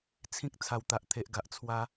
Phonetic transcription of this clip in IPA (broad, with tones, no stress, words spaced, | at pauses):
t͡sʰĩ˦k̚ t͡sʰa˨˩wt̪a˨ʔt̪ʰe˨ʔɡa˨ʔ t͡sʰwa˦